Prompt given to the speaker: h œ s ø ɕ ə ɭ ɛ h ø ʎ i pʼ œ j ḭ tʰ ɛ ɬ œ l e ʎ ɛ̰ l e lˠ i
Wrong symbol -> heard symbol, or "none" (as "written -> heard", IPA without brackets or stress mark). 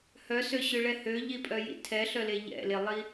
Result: ə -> ø